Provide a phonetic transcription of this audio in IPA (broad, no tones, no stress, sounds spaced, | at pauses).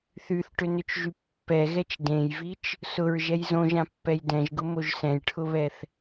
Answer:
θ y θ ʈ ʏ n ʏ t͡ʃ ʒ y pː ɛ ɣ ɛ t͡ʃ d ẽ j v i t͡ʃ | s ʊ ɹ ʒ ɛ j z õ ʒ ã pː ɛ j d ɛ̃ ʒ ɡ ʊ m o ʒ s ɛ̃ j ʈʰ ʊ β ɛ θ